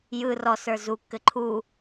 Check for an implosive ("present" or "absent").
absent